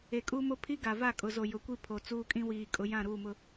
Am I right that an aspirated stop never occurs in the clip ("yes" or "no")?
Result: no